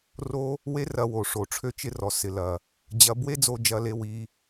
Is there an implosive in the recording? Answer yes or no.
no